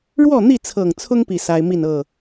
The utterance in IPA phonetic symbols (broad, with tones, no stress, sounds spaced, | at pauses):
ɻ w ɔ˥˨ n̪ i˥˨ t͡sʰ ɤ˨˩ ŋ t͡sʰ ʊ˦ ŋ p i˥˨ s a˦ ɪ̯ m i˥˨ n ɤ˥˨